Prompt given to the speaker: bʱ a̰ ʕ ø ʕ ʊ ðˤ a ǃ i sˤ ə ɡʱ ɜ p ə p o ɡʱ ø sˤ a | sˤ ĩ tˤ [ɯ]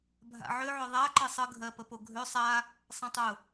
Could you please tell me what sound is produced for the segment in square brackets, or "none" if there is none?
ʊ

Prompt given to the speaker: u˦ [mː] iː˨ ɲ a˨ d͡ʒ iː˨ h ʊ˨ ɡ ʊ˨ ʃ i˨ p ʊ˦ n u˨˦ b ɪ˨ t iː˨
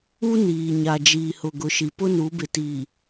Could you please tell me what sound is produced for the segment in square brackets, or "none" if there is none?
n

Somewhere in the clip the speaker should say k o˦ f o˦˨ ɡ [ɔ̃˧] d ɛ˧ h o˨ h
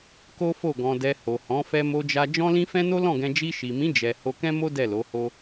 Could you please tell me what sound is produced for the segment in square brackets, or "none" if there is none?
ɔ̃˧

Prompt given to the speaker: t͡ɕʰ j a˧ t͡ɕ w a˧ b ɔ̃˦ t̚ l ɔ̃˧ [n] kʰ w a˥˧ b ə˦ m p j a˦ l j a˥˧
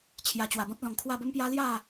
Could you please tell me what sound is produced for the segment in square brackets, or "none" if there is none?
ŋ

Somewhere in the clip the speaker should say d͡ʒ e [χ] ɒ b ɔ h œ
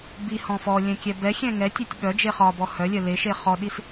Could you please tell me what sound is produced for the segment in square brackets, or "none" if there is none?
χ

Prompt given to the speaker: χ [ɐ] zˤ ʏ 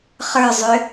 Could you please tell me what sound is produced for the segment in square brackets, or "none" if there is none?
ə˞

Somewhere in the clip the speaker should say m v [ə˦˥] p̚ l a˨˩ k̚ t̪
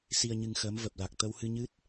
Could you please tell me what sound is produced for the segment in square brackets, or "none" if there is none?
ə˨˩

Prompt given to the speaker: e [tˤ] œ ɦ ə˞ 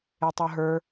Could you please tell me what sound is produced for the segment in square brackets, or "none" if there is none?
tˤ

